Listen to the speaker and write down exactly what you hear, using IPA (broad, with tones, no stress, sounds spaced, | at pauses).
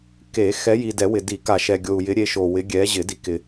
k e˨˩˦ x ɛ˨˦ j i˨ d ɛ˨˩˦ w ɪ˨ d i˨˩˦ k a˨ ʃ ɛ˨ ɡʲ o˨ u̯ j ɪ˨˦ ɾʲ e˨˦ ʃ o˨ w ɪ˨˦ ɡʲ ɛ˨˦ ʑ ɪ˨˩˦ d i˨ k ɪ˨